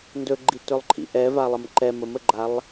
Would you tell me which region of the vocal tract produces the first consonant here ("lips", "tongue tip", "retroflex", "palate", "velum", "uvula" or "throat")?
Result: tongue tip